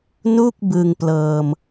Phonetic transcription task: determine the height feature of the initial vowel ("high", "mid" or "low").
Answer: high